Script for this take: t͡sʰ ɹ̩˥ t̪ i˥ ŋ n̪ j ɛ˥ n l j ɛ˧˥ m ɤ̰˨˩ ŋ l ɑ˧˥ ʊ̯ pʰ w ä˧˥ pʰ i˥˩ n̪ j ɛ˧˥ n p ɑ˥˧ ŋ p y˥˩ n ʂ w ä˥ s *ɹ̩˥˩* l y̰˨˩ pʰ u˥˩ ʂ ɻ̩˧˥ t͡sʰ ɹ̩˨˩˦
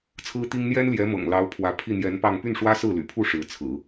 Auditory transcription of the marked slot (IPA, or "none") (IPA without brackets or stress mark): ɹ̩˥˩